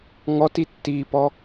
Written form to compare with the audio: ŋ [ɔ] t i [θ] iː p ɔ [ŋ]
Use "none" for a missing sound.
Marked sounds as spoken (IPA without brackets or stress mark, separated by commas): ɔ, tː, none